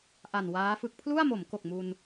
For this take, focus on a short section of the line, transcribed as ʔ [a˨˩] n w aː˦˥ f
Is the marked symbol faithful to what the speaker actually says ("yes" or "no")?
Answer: yes